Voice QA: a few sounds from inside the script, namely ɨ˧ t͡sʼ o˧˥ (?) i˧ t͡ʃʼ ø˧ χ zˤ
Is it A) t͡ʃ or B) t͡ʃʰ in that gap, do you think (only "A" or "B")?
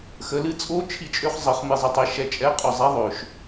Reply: B